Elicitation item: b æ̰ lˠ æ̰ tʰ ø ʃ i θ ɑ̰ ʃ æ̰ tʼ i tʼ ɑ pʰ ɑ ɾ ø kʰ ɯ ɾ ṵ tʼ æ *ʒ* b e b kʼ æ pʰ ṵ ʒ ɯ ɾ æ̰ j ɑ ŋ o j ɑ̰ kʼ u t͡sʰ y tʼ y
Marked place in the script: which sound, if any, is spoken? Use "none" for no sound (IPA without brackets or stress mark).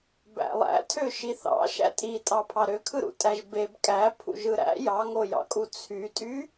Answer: ʒ